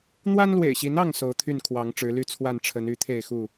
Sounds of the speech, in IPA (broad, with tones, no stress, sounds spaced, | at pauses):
n̪ w a˦ n l w ḛ˨˩ ɪ̯ ɕ i˨˦ n ɑ˥˨ ŋ s o˨˦ ʊ̯ t̪ʰ y˥˨ n kʰ w ɑ˨˦ ŋ ʈ͡ʂ ɻ̩˨˦ l y˥˨ t͡sʰ w a˥˨ n ʈ͡ʂʰ ə˨˦ n y˨˦ t̪ʰ e˥˨ ɪ̯ x u˥˨